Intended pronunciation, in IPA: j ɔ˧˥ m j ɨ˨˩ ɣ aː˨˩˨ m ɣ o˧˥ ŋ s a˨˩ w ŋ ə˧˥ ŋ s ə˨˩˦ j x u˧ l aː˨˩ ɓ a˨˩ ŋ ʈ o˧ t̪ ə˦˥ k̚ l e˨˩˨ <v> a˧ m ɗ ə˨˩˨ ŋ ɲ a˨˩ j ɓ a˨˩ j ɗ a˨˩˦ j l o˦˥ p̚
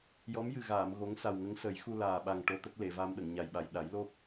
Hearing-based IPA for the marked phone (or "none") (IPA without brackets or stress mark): v